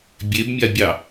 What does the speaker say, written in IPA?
bʲ e b mʲ a bʲ ɑ

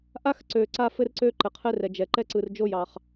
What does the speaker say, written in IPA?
ʔ a˥ x ǀ ø˩ ǀ a˥ f ɘ˥ r ǀ ø˥ ǃ ɘ˩ qʰ ɘ˥ r ɛ˩ d͡ʒ ɛ˩ ǃ ɛ˥ ǀ ɯ˩ r d͡ʒ o˥ j ɑ˩ χ

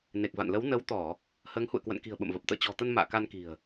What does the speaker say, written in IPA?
n e˨˩ k̚ v a̰˧˨ n l ə˨˦ w n ə˨˦ w t̪ ɔ˧˩˨ | h əː˨˦ ŋ h ṵ˧˨ ə̯ k w ə̰˧˨ n k i̤˨˩ ə̯ ɓ ə̰˧˨ m v ə˨˩ p̚ t̪ ə̰ː˧˨ t͡ɕ ɔ̤˨˩ t̪ ə˧ n m a̰ː˧˨ k a˧ n k i̤˨˩ ə̯

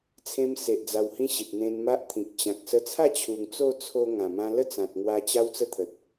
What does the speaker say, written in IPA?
t͡sʰ ẽ˧ m s e˨ ʔ d͡z a˧ w h ĩ˦ ɕ i˨ t̚ n̪ ẽ˧ n m a˦ ʔ t̪ʰ ĩ˨ k̚ t͡ɕ ã˨ k̚ s ə˧ t͡sʰ a˥˧ t͡ɕʰ u˨˩ ŋ t͡s o˥˧ t͡sʰ o˧ ŋ ã˨˩ m ã˧ l ə˥˧ t͡s ã˨ t̚ ŋ w a˧ t͡ɕ a˦ w t͡s ə˥˧ t̪ʰ ə˨ t̚

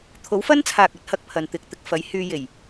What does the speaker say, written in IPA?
t̪ʰ o˨˥ w f ɐ˥ n t͡sʰ aː˨ k̚ ɐ˨˥ t̚ h ɐ˨ k̚ pʰ ɐ˨ n t̪ ɪ˨ k̚ t̪ ɪ˨ k̚ f ɐ˨˥ j h yː˧ j e˨˩ j

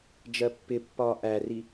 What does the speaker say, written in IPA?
d͡ʒ ɜ pː ɪ pː ɒː ʔ æ r i

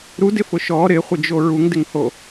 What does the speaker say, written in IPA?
ɾ u d ɪ f ʊ ʃ ɔ ɾ ɪ χʷ ɪ d͡ʒ o ɹ u ŋ d ɪ ŋ h o

